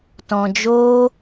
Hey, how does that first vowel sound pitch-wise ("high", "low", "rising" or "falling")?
low